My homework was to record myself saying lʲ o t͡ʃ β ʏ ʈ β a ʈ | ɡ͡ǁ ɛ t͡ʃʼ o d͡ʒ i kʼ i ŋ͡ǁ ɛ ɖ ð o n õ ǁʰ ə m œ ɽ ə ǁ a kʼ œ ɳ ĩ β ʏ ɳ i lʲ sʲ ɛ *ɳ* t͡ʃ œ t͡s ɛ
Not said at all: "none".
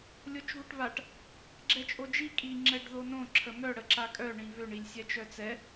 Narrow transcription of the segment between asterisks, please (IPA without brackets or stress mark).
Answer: none